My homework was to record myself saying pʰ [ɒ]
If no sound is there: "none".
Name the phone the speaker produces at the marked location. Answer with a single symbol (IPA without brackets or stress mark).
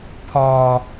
ɒː